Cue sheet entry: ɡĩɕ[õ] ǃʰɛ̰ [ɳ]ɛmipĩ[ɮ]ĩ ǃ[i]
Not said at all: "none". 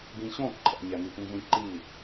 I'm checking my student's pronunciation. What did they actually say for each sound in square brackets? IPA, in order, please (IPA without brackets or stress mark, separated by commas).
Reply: õ, ɲ, ɮ, i